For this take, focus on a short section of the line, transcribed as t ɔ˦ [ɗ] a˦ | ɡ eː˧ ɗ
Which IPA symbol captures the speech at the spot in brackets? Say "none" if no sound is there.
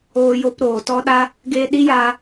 ɗ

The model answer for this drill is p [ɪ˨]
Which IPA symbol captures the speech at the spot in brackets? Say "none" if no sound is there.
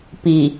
i˨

